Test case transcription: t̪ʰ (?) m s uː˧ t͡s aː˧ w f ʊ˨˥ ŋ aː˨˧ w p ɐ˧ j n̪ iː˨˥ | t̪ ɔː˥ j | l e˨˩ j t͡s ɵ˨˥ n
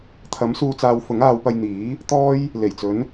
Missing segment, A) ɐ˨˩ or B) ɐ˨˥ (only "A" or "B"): B